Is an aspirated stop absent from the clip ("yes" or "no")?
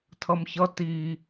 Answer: no